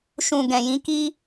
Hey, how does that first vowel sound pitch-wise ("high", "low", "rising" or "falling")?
low